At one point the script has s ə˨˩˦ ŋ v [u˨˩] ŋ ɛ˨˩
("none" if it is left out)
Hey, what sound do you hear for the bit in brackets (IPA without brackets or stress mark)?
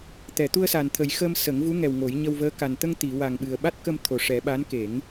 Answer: u˧˥